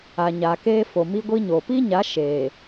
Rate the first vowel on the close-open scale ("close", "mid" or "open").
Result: open